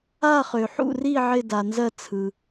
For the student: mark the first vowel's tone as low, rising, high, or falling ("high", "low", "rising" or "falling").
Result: falling